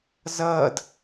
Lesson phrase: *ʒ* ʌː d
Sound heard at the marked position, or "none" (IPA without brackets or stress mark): z